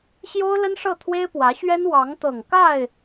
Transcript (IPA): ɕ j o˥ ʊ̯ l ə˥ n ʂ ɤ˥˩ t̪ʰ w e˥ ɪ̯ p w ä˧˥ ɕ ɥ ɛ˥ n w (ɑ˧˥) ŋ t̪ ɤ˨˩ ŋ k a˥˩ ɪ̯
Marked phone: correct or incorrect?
correct